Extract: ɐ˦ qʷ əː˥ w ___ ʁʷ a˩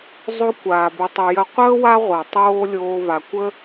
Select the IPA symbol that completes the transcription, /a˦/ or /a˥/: a˦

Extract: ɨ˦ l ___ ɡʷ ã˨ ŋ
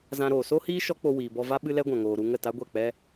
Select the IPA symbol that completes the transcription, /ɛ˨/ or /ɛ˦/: ɛ˦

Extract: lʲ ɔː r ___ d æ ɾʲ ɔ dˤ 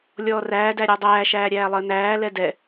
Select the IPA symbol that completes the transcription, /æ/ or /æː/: æː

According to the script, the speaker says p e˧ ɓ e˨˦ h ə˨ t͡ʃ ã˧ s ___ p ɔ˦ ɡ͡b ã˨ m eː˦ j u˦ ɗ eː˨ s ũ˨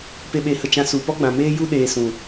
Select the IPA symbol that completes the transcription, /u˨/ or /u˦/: u˨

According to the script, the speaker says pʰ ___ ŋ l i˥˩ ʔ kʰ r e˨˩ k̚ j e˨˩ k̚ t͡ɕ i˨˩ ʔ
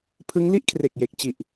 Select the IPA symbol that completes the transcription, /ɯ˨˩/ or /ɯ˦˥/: ɯ˦˥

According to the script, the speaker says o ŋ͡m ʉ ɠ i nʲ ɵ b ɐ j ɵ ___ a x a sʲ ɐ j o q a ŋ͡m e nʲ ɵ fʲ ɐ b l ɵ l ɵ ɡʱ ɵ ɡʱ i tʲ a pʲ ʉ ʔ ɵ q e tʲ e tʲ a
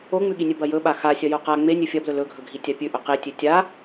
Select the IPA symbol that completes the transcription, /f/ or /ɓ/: ɓ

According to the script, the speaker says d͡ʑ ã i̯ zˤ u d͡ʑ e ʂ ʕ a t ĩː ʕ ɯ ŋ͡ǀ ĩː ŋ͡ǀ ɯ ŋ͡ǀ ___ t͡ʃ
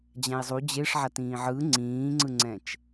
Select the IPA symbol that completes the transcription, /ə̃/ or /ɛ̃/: ɛ̃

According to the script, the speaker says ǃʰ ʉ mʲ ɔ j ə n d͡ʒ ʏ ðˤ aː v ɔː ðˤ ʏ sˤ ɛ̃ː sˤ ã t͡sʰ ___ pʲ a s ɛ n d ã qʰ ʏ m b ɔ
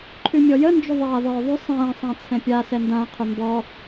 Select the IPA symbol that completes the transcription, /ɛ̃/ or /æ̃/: ɛ̃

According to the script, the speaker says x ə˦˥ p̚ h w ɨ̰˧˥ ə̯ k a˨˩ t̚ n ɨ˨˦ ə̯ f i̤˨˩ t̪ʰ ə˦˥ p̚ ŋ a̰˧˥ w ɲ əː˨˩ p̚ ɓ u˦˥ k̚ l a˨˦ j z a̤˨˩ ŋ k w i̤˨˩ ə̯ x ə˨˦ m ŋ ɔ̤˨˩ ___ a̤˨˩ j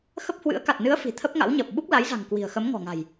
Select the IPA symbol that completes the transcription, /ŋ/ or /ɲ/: ŋ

